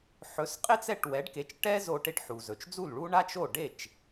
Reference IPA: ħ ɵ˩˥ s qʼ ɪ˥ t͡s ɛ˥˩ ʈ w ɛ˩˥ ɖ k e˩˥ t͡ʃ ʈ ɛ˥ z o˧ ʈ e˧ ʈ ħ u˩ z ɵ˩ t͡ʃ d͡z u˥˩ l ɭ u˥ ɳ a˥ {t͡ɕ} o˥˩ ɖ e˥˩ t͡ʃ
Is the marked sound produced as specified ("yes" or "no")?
no